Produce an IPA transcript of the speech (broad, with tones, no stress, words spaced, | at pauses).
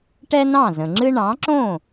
ʈɛ˥nɑ̃˥˩zə̃˩ŋ͡ǁɨ˥ ɳɑ̃˩˥ǁõ˥˩